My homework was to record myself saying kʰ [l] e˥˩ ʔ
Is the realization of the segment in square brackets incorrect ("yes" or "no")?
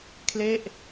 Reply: no